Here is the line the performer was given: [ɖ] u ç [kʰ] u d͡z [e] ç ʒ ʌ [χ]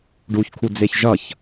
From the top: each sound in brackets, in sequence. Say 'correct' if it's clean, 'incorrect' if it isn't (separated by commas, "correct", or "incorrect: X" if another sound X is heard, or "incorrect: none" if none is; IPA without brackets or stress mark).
correct, correct, correct, incorrect: ç